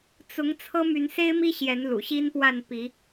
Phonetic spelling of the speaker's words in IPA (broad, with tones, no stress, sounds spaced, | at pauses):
t͡s ʊ˨˦ ŋ t͡sʰ ɤ˦ m y˨˦ n s e˦ ɪ̯ m i˦ ɕ j ɛ˨˦ n l ṵ˨˩ ɕ i˦ n p w a˥˨ n p i˨˦